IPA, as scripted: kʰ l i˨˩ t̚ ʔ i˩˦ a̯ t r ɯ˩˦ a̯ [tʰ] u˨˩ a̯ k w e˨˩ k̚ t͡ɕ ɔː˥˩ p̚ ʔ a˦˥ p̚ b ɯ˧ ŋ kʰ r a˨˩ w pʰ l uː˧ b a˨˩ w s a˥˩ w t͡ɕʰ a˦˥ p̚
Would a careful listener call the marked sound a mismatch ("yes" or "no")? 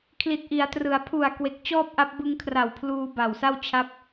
yes